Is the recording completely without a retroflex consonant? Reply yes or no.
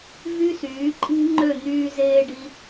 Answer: no